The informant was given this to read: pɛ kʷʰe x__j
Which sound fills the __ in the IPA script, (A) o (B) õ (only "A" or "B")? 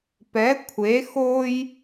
A